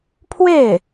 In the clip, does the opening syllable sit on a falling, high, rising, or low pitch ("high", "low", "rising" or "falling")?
falling